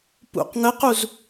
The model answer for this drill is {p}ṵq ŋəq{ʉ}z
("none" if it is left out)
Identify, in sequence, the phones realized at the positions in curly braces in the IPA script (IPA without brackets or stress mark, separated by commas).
p, u